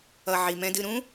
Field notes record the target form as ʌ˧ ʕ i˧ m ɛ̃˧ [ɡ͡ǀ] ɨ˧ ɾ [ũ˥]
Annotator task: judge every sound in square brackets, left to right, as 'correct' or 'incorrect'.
incorrect: d, correct

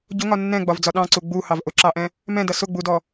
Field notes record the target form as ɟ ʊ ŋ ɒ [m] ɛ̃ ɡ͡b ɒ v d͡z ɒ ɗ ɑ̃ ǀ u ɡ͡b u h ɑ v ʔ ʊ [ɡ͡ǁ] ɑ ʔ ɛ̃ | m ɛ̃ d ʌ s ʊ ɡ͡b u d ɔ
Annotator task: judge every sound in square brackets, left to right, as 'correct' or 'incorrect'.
incorrect: nː, incorrect: ǁ

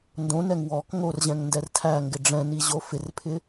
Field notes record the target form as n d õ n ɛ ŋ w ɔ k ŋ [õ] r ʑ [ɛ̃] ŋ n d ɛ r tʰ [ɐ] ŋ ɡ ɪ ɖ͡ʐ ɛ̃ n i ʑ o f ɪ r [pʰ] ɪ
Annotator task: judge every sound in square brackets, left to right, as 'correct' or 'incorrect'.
incorrect: o, correct, incorrect: æ, correct

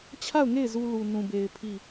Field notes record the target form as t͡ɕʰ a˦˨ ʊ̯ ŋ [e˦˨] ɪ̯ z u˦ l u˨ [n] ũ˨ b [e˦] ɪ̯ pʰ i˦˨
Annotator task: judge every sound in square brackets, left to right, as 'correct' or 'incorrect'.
correct, correct, incorrect: e˨

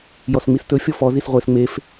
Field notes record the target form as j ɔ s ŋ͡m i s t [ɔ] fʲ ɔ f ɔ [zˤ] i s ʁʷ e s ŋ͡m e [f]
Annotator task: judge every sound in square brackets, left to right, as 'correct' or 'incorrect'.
incorrect: ɵ, incorrect: z, correct

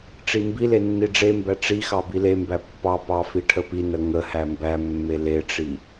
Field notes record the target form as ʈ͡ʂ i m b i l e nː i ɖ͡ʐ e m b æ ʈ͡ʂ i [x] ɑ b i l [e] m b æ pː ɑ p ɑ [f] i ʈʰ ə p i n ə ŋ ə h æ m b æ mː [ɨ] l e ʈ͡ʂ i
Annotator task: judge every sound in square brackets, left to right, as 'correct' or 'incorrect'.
correct, correct, correct, incorrect: e

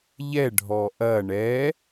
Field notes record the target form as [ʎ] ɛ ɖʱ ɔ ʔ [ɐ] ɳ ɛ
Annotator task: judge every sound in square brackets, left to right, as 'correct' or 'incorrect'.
correct, correct

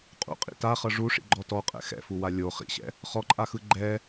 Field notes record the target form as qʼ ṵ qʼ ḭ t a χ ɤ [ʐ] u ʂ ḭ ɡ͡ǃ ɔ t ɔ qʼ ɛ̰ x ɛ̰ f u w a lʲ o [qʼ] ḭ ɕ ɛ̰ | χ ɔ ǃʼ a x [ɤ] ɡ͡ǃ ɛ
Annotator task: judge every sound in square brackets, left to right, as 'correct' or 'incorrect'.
correct, incorrect: χ, incorrect: ɯ

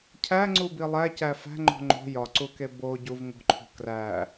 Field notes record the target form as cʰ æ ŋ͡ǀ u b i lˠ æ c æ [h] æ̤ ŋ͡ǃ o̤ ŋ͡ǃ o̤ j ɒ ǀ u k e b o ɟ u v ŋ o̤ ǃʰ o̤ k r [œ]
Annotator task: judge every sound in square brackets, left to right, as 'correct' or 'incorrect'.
incorrect: f, incorrect: æ

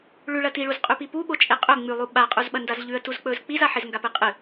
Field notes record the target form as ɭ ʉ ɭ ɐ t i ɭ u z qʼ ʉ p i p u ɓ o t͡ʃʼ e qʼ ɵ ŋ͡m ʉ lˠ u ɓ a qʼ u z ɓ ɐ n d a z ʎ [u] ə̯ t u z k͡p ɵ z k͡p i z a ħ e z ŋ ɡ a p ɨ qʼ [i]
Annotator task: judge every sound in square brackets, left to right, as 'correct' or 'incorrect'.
incorrect: ʉ, incorrect: ɨ

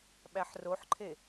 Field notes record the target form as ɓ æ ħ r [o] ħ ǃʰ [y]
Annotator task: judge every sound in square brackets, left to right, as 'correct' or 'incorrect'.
correct, incorrect: e

